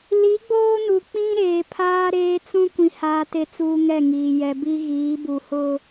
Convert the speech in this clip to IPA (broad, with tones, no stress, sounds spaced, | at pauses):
l i˨˦ ɡ͡b oː˦ n u˨ k͡p ĩ˦ ɾ eː˨ pʰ aː˦ ɾ eː˦ t͡s ũ˦ kʷ ĩ˨ h aː˨ t e˨ t͡s uː˦ ŋ ɛ˦˨ ŋ iː˨ j ɛ˨ b i˦ ɣ iː˨˦ b u˨ h ʊ˦